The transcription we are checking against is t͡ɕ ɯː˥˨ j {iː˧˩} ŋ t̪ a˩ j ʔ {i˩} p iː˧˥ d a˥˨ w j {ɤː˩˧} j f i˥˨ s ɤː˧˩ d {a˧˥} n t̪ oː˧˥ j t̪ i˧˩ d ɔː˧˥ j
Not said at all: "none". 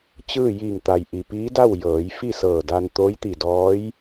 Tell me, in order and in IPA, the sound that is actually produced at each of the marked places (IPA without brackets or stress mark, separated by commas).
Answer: iː˧˩, i˩, ɤː˩˧, a˧